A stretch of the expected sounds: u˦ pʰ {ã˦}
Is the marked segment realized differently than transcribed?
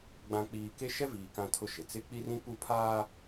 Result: yes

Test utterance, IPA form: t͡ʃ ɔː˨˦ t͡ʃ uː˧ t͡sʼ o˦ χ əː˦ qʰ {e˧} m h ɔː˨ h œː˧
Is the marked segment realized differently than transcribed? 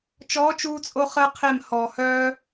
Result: yes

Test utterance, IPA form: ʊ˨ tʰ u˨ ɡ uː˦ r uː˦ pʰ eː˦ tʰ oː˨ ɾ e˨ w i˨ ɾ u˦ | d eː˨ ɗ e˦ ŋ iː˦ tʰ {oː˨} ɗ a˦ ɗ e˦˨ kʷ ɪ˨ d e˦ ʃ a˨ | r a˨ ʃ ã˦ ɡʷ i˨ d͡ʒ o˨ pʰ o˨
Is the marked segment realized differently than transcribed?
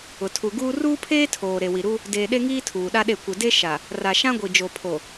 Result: yes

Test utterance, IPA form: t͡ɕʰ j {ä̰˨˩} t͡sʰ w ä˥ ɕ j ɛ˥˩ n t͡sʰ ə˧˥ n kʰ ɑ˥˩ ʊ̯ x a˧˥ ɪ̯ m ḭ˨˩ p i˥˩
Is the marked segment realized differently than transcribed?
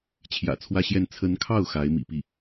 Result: no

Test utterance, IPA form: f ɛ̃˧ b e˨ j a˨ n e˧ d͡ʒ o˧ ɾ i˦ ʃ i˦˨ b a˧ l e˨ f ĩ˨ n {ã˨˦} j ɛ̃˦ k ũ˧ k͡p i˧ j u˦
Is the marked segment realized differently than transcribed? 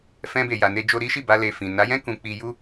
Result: yes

